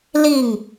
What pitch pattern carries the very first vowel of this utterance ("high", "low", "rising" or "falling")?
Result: falling